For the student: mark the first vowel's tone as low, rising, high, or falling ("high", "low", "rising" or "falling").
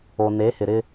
low